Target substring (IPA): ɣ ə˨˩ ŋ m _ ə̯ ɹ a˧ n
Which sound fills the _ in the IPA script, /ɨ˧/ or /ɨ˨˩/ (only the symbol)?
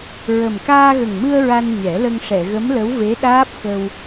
ɨ˧